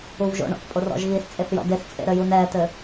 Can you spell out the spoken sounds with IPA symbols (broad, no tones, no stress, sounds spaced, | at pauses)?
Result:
u v ʒ o̰ ɳ ɔ̰ θ pʼ o r ɔ̰ ʒ ɣ i s t͡sʼ e θ j ɔ̰ d e s t͡sʼ ḛ ɾ ɘ j u n ɛː t ɘ